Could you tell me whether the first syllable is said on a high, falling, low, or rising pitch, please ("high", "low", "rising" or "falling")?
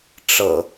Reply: low